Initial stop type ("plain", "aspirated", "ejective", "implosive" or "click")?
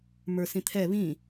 aspirated